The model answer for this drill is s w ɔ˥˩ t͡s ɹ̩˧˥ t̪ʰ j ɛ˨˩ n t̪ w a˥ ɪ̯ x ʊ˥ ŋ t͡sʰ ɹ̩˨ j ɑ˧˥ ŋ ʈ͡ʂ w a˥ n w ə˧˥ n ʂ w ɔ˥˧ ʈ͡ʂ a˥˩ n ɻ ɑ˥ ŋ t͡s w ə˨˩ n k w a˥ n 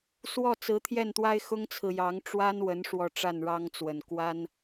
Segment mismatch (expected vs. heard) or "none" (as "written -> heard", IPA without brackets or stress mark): ɛ˨˩ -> ɛ˥˩